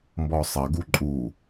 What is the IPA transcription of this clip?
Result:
mbɔsˤɐ ɡuǃʼu

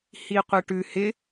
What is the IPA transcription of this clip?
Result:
hiqʷɜʈʉ hɪ

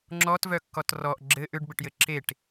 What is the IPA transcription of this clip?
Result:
ŋ͡ǁɔtvœkːɔt rɔʔ ɡ͡ǁɘ ʔʏɖbɘʈjɘ ǁeʈ

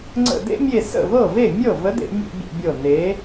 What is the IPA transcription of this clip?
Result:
ŋ͡ǀə̰˧˩dḛ˦mʲe˧˩ sə̰˥˩vɤ˥˩ve˥˩ mʲɤ˥˩ və˨˥dḛ˧˩˧mʲḛ˧˩˧ bʲə̰˧˩˧bʲɤ˧˩ ne˩˧

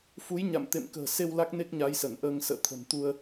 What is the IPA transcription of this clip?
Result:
fu˨˦jɲa̰˧˨m t̪ḛ˧˨mkə̤ː˨˩se˧w la˦˥k̚ne˦˥k̚ɲa˨˦j sə˧˩nʔəː˧ŋ sə̰ː˧˨t̪ʰə̤˨˩nt̪u˧ə̯

